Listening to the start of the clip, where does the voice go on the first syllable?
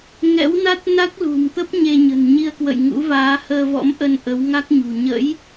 rising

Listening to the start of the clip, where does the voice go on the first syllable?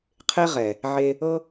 high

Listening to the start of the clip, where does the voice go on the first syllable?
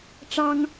high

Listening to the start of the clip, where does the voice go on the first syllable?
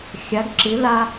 rising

